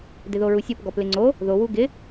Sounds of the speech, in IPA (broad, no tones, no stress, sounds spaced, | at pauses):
d ɪ ð o ɹ u sʲ o p ɡ ɔ p l ɪ ŋ͡ǀ o | ð o w u ɡ ɪ